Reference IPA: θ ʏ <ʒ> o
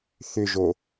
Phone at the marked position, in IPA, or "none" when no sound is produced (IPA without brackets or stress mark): ʒ